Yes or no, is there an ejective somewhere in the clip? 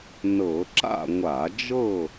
no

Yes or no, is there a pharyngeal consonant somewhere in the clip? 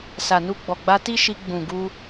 no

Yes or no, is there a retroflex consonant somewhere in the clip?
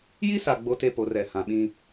no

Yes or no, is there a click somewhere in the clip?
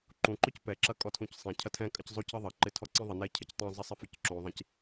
yes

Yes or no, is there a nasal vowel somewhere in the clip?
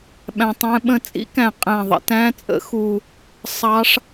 yes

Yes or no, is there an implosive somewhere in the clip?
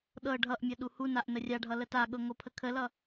yes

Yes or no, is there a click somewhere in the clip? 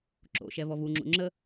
yes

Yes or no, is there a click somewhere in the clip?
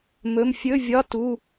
no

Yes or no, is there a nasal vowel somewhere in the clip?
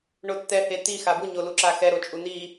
no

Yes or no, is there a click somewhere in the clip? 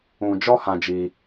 no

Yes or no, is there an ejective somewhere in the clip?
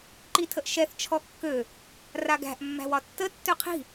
no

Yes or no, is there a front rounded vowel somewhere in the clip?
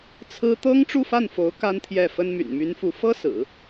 yes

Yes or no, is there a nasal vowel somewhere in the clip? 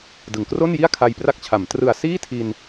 no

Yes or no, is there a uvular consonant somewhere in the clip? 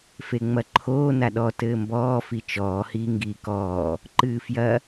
no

